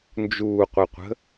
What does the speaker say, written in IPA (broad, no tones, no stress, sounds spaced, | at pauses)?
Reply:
n d͡ʒ uː qʷ i qʷ ə̤